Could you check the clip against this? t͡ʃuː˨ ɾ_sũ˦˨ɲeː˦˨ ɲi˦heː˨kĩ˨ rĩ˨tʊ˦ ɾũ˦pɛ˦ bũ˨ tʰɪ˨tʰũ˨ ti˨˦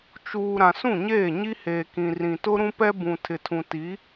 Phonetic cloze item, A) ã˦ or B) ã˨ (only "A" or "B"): B